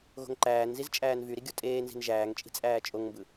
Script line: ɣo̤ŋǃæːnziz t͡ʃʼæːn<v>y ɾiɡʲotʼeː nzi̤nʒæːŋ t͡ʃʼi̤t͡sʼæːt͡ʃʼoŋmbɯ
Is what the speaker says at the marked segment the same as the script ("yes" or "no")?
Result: yes